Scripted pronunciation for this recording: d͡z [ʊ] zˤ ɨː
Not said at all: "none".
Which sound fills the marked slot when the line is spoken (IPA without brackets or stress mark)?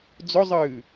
ʊ